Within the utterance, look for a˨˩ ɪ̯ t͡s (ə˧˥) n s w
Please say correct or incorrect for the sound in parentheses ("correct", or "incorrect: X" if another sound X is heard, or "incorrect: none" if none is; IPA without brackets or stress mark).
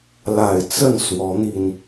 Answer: incorrect: ə˥˩